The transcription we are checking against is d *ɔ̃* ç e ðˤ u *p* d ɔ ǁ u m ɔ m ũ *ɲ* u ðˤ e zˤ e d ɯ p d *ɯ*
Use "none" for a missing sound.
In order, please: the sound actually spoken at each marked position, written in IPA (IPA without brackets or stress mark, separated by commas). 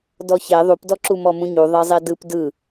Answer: ɔ, p, ɲ, ɯ